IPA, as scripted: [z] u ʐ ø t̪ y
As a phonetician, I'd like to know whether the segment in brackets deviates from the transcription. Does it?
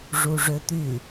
yes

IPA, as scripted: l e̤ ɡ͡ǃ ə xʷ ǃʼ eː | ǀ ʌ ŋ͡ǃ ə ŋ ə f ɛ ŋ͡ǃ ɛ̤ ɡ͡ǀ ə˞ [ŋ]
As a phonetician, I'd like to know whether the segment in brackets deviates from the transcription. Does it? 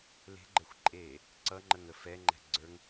no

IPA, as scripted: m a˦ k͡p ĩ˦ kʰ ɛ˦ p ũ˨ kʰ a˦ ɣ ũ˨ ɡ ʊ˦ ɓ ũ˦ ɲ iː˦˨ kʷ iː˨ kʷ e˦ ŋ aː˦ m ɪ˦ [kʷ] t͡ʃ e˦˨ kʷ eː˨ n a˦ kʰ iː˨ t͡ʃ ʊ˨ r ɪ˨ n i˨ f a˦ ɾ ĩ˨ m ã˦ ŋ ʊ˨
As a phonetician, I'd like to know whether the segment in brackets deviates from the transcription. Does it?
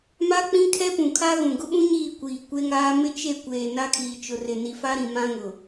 yes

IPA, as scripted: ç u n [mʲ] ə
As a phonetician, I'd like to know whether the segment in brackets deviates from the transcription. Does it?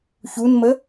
yes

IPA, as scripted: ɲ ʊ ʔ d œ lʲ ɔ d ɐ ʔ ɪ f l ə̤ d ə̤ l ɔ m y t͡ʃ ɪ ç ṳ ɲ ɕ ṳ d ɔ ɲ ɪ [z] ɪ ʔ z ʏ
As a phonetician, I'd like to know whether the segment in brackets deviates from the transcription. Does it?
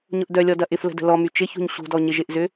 yes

